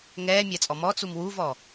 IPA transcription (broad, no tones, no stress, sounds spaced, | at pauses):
ŋ ɛː mʲ æ t͡sʼ ɔ m ɔ t͡s u m w u v ɔ